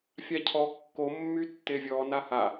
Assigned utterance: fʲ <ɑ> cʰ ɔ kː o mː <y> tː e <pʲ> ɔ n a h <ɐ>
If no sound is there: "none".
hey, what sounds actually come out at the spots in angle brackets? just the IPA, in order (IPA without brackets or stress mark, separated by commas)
a, y, vʲ, a